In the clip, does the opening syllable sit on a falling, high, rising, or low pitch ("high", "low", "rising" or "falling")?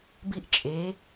falling